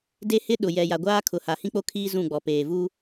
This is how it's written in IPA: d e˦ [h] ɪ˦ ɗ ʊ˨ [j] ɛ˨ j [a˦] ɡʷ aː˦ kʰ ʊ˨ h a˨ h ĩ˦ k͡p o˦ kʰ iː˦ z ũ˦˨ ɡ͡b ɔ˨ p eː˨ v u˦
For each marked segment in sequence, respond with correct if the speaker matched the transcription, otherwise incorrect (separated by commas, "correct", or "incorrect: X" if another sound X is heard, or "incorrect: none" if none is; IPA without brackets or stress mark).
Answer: correct, correct, incorrect: a˨